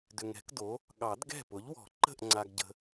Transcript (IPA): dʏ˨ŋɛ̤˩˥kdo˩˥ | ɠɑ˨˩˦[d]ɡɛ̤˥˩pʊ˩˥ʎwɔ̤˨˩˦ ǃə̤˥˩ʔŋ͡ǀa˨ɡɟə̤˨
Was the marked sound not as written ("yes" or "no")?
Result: no